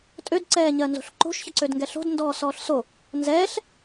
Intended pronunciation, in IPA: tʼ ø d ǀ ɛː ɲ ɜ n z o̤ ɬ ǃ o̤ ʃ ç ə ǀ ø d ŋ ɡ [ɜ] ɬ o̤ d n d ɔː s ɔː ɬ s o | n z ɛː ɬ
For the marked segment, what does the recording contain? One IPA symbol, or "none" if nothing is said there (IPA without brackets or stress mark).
ɛ